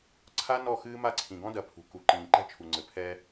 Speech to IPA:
ǀʰa˦nɔ˦˨ xɨː˦ma˦ǀʰĩ˨ ɡɔ̃˦dɐ˨ pʰṳ˨ku˨ ǃĩː˨ǃɛ̤˦t͡ʃʰu˨ŋ͡ǀɘ˨ pʰɛ˦

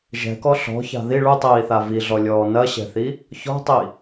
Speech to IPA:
ʒɛ̤kɔ ɬɔ̤ça̤ ði ɭutˤiːθa viɮɔlʲɔː nɐɕɛ̤θi | çɔ̤tˤi

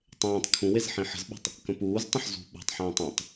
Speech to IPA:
tˤẽːtˤ kʰũwez ħĩħə̤zɓə̤tˤ | kə̃puːztˤə̃ħ zṳ ɓṳtˤħẽːtˤ ũtˤ

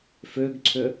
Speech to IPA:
fʏːɡǀʰʏ

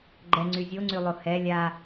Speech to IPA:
ɡ͡ǃɛŋ͡ǀy zʲoŋ͡ǀylˠo hɛ lʲa

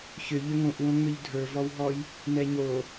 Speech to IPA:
çʏ ʎʏŋõʔwõŋ͡mʏʎ dʱə˞vɔwɦɔj | nɛɲo

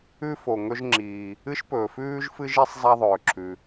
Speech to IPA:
ʉ˥fo˩ ŋɵ˥ʒŋ͡ǁiː˩ | ɨ˥ʃpɵː˩fʉː˥ʒ fɨ˥ʒi˥sˤ zˤa˥ðˤɵː˩ǁʰʉ˩

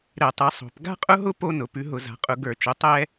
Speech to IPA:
ɾɛ˧˩˧tˤɛ˩˥ sˤo̤˩˥p ɡa̤˦qʼʊ˦ɦʊ˦ po˦nʊ˩˥ pʉ˩˥ɦʊ˧˩˧za̤˩˥qʼʊ˧˩˧ ɡə˞˧˩˧t͡ʃʊ˩˥ tˤɛ˦

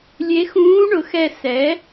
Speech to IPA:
lʲe˧˥ xũː˧˥ɳʊ˩xɛ˧˩ sɛ˩˥

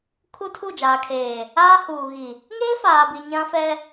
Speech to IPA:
kʰu˦tʰu˦˨d͡ʒaː˨kʰeː˨ | aː˦huː˨ɣi˨ | ŋeː˦faː˨bi˨ ɲã˦fɛ˦

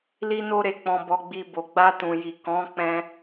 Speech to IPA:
li˦no˦ɾe˧ k͡pɔ̃˧ bɔ˧ɡ͡bi˧ bo˨ɡ͡ba˧tũ˨ji˨ kɔ̃˨˦k͡pɛ̃˧

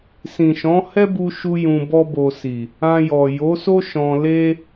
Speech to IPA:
sĩ˨ʃɔ̃˨˦ hɛ˦bu˧ʃu˧ jũ˧bɔ˦bo˧si˨ | ã˧jɔ˨ jo˨˦so˦ ʃɔ̃˧le˦

